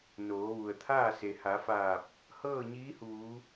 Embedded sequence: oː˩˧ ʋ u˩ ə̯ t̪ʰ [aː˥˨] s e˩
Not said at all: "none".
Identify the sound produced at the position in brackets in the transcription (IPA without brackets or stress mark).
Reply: aː˥˨